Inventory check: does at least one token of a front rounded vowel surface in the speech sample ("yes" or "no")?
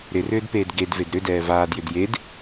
yes